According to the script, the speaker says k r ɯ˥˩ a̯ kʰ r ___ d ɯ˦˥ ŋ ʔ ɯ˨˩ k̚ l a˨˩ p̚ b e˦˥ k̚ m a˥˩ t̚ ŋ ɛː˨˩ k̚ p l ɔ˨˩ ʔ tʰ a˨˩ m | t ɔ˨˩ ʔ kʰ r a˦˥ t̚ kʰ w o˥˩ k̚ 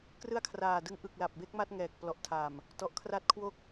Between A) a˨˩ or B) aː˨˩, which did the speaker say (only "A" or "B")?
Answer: B